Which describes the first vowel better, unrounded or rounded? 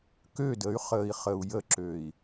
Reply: rounded